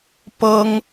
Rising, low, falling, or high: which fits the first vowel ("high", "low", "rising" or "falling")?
high